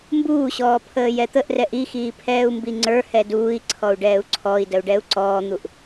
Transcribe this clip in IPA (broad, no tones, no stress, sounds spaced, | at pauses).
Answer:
m b uː ɕ ɔː pʰ əː j ɛ t̪ ə ʔ r ɛ ʔ i x iː pʰ ɛː u̯ m b i ŋ͡ǀ ə˞ h ɛ d uː i̯ ǀʰ ɔ u̯ ɖ ɛː u̯ ǀʰ ɔ i̯ d ə u̯ ɖ ɛ u̯ ǀ ɔː n̪ u ʔ